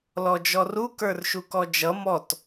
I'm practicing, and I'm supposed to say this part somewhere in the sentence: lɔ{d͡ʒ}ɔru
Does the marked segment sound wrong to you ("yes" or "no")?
no